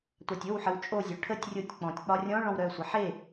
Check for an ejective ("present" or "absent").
present